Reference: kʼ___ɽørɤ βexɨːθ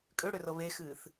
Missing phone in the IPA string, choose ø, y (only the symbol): ø